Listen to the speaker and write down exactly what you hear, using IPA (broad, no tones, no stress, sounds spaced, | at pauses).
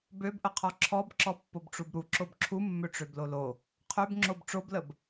b ø b ʔ ə qʰ ɔ ǁʰ ɔ b ǁ ɔ pː o b ʈ͡ʂ u b ɾ u ǁ o b ǁʰ u mː ø ʈ͡ʂ ø b l o l o | qʰ ø b ŋ͡ǁ o b ʈ͡ʂ o b l ə b